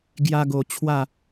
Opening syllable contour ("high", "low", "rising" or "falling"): high